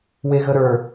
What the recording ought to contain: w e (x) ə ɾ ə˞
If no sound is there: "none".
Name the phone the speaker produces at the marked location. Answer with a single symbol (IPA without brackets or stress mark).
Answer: ɣ